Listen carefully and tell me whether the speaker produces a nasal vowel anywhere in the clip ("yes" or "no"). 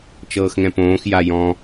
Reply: yes